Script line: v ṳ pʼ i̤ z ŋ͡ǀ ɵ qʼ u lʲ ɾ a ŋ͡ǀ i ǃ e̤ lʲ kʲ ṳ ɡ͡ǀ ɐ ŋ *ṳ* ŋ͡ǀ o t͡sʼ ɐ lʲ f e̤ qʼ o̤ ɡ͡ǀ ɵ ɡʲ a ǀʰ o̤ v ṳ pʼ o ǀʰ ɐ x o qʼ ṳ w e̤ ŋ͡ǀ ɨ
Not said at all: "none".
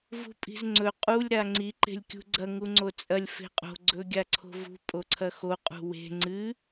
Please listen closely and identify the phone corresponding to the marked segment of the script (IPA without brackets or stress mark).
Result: u